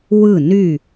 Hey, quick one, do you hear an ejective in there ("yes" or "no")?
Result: no